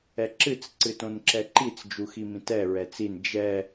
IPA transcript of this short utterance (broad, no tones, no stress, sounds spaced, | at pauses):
ɛ ǁ ɨ t͡s ǀ ɨ t õ n ǁ ɛ ǃ i t͡s d͡ʒ u x i m ĩ t ɛ ɹ ɛ t͡s i n d͡ʒ ɛ